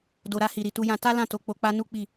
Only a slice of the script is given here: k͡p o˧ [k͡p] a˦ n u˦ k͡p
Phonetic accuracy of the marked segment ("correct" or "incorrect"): correct